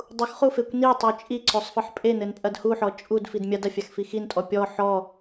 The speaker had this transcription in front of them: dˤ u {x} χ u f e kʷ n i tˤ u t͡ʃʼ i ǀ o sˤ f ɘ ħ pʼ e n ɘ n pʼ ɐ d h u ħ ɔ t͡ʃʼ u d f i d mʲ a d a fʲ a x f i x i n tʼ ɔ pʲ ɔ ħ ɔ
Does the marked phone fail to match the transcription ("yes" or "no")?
no